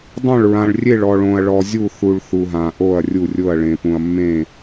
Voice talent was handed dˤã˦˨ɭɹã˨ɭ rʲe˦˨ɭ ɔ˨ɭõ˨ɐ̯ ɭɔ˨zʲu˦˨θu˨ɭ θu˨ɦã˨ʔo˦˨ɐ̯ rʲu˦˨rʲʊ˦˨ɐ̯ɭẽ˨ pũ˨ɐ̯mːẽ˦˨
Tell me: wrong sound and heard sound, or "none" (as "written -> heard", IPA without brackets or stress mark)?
none